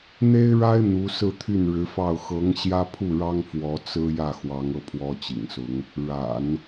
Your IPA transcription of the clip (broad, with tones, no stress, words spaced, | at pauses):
n̪e˥ɪ̯ɻa˥ɪ̯ n̪u˧˥sɹ̩˥˧t̪ʰy˥˩n ɻɻ̩˧˥fɑ˥˩ʊ̯ xɤ˧˥ŋ ɕjä˥pʰu˥˩ɻɑ˥ŋ fwɔ˧˥t͡sɹ̩˥ jä˥˩xwɑ˧˥ŋɤ˥˩ pʰwɔ˥t͡ɕḭ˨˩ŋsʊ˧˥ŋ | ɻa̰˨˩˦n